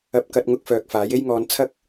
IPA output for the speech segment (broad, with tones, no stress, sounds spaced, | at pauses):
ɐ˧ p̚ k ɐ˧ t̚ ŋ ʊ˧ k̚ f œː˨ k̚ f aː˨˥ j e˥ j ŋ ɔː˧ n t͡sʰ ɐ˥ k̚